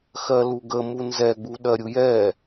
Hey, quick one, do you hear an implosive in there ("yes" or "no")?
yes